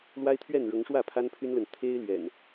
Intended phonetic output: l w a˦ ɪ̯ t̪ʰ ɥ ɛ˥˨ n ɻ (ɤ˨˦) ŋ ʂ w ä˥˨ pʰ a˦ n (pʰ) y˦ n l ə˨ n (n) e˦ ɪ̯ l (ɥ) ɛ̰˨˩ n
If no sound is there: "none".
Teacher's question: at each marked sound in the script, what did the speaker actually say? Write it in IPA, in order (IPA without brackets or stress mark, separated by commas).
ɤ˨˦, pʰ, t̪ʰ, ɥ